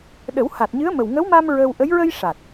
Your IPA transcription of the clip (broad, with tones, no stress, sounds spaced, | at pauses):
ɗ ə˨˩˦ w h a˨˩ t̚ ɲ ɨ˧˥ ə̯ m ə˨˩ w ŋ ə˧˥ w m a˧ m ɹ ə˧ w ʔ ə˧˥ j ɹ ə˧ j ʂ a˨˩ t̚